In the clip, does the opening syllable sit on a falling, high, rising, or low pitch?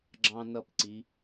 high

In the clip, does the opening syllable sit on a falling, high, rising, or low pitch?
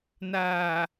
low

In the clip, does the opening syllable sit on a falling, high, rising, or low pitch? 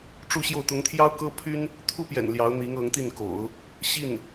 falling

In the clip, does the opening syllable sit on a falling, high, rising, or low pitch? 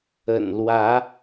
low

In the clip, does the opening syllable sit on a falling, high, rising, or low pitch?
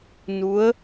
rising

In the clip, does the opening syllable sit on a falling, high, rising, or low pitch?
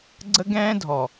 high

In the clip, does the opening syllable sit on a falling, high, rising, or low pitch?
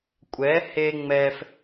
rising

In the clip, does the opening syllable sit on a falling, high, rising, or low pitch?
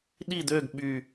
falling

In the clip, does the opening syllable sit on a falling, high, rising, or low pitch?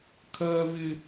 high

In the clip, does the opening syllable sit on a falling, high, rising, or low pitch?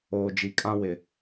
low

